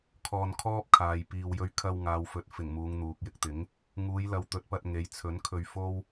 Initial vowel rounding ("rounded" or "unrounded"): rounded